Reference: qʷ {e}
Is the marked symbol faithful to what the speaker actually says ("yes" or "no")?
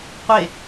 yes